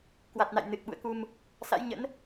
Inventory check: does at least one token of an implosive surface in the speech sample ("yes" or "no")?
yes